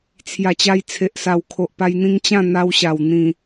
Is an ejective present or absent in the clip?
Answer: absent